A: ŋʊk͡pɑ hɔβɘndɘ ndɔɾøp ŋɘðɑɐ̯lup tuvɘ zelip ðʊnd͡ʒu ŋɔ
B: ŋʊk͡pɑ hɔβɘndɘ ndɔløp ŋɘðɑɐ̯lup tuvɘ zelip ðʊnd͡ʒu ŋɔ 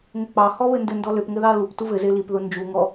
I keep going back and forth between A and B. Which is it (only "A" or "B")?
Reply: B